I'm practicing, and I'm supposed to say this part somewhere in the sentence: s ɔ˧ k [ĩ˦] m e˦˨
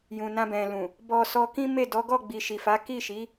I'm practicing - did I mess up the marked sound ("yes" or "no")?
no